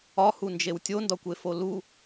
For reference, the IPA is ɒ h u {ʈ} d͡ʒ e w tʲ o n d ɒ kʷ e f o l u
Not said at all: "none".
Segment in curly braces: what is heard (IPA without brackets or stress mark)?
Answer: n